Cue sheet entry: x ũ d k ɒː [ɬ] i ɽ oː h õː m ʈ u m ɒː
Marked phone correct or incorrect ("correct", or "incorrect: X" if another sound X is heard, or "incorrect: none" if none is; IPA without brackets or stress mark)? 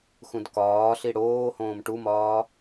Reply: correct